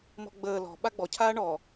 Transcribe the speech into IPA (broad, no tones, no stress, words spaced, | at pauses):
mɔ̤ɡ͡bəː lɔ̤ ɓaɡ͡bɔ cʰaːɳɔ